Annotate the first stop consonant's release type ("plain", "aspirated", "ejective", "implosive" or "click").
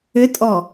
ejective